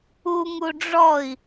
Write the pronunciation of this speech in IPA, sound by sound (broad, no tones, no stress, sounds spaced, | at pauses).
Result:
u ŋ u ɖ͡ʐ ɔ i̯